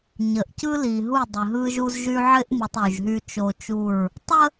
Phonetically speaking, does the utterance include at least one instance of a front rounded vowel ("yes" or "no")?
yes